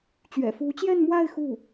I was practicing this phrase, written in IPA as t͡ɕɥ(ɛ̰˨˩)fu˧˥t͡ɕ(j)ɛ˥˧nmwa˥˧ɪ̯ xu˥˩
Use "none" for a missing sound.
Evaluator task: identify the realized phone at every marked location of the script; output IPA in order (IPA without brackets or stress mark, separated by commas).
ɛ̰˨˩, j